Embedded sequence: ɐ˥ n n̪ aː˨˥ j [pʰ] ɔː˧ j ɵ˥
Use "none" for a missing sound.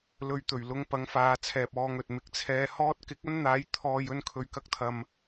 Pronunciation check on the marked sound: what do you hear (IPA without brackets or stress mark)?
t̪ʰ